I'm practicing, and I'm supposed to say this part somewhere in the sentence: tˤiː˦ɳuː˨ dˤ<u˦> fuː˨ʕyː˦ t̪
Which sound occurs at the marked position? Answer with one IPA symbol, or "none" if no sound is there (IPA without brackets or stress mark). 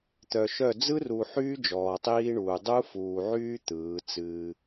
u˦